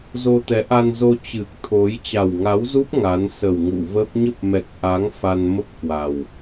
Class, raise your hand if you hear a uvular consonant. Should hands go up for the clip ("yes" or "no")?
no